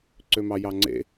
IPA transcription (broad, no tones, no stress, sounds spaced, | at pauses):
ǀ ø m ɑ j ɑ ŋ͡ǀ ḛ